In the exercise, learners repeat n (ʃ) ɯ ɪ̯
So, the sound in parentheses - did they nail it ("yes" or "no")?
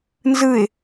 no